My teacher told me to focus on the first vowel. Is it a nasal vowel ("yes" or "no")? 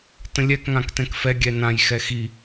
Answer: yes